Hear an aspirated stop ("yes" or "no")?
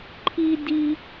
yes